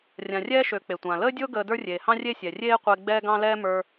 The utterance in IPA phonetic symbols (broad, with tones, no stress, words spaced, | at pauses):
rʲã˨rʲɛː˥ʃø˨ k͡pe˩tʷãː˩ ləː˦dʲʊː˦ɡəː˨ də˞˦rʲeː˩hɑ̃˦ rʲe˦sʲɛ˩ rʲeː˦qʷe˨ ɡ͡bɛː˦ɡɑ̃˦lɛː˦ mə˞˨